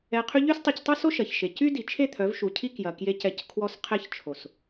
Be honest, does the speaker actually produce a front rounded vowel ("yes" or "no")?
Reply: yes